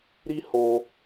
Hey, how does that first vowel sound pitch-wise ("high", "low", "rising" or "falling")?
high